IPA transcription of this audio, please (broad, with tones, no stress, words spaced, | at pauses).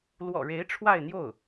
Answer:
lwɔ̰˨˩ɻe˧˥ɪ̯ ʈ͡ʂʰwa˥˧ɪ̯n̪jo˥˩ʊ̯